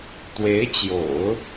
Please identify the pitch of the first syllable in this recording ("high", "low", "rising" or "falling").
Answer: rising